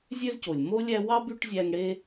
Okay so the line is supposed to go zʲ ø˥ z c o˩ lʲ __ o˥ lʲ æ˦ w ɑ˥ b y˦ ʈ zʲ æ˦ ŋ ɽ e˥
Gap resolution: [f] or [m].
m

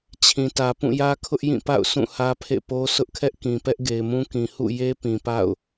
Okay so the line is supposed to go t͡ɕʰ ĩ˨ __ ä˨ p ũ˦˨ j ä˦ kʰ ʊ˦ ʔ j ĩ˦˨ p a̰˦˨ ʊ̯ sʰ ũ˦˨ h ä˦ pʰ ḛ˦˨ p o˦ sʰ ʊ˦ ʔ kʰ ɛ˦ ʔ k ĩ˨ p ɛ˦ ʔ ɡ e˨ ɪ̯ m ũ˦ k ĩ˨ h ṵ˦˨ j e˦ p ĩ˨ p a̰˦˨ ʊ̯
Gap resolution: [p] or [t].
t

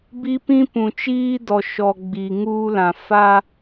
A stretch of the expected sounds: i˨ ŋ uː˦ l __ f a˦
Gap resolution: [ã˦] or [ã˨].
ã˨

